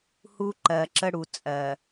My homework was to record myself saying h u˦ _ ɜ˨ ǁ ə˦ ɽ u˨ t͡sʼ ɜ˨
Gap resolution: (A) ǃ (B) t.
A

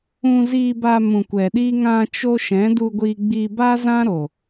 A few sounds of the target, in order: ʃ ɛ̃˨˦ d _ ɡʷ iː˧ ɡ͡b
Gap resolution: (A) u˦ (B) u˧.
B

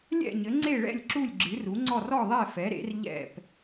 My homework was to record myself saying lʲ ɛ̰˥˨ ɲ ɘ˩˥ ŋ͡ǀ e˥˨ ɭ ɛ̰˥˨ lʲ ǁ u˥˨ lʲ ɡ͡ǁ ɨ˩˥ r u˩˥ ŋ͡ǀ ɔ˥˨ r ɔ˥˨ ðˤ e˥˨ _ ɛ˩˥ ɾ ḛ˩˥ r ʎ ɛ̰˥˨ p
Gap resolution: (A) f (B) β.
A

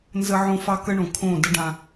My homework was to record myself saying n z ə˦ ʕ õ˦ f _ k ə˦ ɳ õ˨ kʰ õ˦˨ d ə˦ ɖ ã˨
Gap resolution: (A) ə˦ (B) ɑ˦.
B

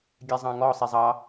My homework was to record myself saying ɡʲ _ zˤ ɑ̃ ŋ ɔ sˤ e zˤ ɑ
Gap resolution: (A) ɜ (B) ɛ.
B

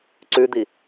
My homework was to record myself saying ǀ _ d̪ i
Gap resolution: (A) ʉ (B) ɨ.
A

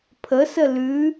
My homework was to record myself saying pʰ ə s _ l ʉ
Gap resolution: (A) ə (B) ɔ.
A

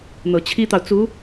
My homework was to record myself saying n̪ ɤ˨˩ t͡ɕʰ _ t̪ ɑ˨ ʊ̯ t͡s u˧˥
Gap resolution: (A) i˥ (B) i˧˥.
A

